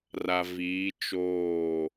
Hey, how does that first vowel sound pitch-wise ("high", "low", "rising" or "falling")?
low